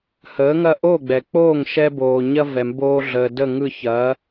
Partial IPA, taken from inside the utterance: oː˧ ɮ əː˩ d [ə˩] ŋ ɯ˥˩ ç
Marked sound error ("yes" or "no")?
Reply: yes